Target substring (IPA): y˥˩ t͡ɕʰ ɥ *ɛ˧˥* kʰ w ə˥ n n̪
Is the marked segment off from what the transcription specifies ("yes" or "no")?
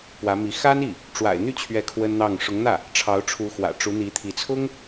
no